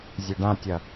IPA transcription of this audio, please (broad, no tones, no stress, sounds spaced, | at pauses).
zʲ e ɖ ã tʲ ɐ